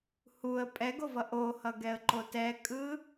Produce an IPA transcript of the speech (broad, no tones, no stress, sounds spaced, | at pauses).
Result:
h u ə̯ pʼ ɛ ɡ o v ʌ ʔ o h ʌ ɡ ɛ ə̯ ǃ o t ɛ kʼ ɯ